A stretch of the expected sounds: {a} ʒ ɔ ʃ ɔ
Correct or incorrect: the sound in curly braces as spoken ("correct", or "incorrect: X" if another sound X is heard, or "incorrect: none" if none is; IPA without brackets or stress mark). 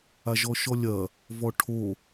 correct